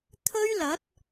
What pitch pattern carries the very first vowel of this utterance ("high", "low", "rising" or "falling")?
high